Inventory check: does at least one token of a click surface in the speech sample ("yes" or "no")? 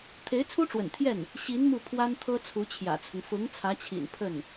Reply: no